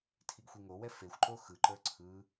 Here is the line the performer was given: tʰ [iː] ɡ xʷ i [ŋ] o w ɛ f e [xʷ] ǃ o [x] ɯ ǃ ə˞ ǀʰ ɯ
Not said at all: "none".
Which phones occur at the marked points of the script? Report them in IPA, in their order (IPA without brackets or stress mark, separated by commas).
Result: i, ŋ, xʷ, x